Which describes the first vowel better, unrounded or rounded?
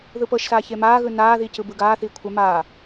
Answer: unrounded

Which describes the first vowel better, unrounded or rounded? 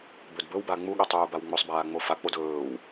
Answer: rounded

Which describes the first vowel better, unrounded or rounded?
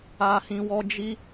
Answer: unrounded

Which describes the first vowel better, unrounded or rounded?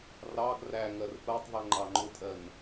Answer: unrounded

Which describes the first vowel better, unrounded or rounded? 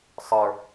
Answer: unrounded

